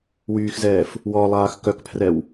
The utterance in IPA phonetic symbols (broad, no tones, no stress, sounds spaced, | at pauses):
w yː x z ɛː f | w ɔ lˠ aː x k œ k pʰ r ɛ w